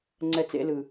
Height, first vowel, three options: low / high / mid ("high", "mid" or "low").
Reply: mid